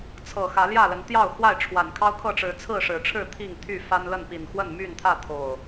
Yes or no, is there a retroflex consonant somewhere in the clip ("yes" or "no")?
yes